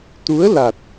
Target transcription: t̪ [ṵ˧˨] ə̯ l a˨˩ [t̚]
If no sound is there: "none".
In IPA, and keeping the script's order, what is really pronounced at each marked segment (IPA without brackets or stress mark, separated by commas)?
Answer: u˨˦, t̚